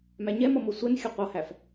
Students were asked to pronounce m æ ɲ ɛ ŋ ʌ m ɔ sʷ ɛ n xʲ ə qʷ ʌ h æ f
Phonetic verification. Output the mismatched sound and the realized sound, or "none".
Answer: ŋ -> m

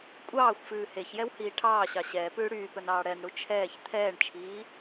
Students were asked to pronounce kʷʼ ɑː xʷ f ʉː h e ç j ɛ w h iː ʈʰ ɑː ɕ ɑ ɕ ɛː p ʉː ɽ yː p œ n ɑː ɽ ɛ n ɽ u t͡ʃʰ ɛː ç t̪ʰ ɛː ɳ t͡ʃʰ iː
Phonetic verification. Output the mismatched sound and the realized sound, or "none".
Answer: none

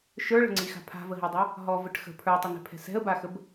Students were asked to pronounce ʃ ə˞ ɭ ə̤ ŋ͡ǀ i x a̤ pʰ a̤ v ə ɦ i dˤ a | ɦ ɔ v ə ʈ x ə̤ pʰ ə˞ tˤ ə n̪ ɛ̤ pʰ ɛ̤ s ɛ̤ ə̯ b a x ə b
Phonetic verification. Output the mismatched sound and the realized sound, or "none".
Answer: none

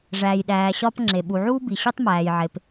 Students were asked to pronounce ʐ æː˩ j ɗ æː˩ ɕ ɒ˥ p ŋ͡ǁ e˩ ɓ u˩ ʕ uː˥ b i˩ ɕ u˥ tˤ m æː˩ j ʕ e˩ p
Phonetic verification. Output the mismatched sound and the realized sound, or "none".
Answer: none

